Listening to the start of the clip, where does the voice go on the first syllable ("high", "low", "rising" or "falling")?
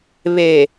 low